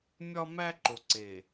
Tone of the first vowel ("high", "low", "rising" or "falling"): high